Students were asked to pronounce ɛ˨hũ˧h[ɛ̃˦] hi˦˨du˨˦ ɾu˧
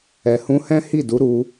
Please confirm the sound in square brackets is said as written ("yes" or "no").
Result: yes